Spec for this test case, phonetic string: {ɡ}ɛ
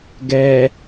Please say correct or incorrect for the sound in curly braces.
correct